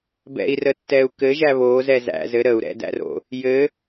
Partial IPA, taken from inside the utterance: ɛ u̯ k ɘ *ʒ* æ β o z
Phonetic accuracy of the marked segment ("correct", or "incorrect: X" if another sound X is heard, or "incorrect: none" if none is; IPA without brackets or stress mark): correct